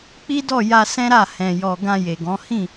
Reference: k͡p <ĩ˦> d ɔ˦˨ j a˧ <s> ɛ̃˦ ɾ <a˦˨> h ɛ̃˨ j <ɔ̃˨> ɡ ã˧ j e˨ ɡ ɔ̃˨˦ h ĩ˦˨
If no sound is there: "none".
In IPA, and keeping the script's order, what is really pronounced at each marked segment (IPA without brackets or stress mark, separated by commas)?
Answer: i˦, s, a˦˨, ɔ˨